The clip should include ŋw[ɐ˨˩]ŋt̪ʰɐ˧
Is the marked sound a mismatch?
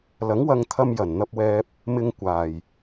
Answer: yes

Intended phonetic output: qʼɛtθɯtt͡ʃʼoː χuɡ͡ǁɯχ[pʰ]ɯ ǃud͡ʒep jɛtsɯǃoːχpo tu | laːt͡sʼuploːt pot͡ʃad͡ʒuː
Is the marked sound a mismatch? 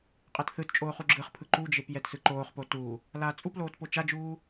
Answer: no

